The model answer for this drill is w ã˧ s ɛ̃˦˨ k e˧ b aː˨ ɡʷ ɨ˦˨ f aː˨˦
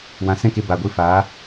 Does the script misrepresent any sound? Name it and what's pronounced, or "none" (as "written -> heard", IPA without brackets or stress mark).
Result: none